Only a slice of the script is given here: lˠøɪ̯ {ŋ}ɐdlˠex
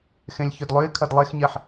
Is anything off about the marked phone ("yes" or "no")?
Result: yes